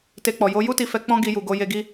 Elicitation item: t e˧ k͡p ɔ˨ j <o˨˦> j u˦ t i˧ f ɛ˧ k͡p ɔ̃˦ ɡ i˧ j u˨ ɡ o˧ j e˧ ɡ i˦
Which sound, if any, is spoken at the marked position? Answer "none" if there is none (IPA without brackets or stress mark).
o˨˦